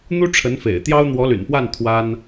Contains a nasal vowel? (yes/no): no